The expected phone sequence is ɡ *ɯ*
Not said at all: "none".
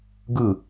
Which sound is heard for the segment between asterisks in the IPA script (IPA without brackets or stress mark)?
ɯ